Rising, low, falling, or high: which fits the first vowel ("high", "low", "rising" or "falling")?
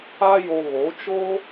high